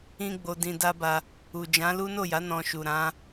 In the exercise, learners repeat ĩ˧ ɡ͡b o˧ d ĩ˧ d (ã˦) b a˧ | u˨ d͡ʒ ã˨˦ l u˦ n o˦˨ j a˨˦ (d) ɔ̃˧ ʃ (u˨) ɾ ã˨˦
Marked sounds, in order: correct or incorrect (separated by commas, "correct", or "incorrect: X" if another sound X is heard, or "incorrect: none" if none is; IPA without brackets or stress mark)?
incorrect: a˦, incorrect: n, correct